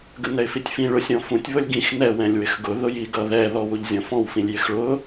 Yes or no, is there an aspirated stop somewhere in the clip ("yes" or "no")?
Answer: no